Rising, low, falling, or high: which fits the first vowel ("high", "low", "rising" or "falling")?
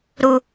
low